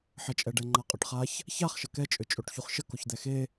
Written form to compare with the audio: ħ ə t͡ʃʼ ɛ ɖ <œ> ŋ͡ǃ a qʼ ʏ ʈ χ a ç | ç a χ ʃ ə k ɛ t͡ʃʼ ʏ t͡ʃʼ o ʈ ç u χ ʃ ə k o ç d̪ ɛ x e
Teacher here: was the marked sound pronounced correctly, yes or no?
no